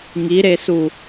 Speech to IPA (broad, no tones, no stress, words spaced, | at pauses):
ŋiɾesu